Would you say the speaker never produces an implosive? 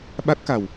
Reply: no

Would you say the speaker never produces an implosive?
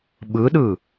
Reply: no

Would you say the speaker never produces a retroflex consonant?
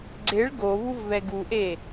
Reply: no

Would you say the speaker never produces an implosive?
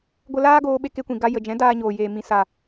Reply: no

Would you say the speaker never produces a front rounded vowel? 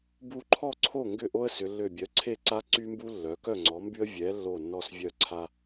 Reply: no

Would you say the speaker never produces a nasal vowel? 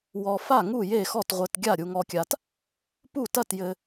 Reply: yes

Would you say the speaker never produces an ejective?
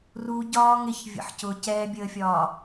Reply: yes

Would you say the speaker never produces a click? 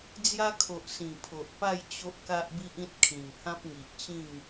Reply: yes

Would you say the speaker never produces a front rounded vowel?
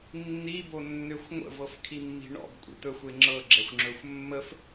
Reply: no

